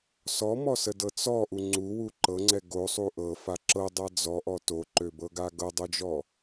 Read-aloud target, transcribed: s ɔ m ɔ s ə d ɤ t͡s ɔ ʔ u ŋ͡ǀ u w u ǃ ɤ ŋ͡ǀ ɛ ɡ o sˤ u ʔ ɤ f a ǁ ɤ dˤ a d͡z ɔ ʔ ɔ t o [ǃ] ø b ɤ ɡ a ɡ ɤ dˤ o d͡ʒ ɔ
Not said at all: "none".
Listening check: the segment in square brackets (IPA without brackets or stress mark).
ǃ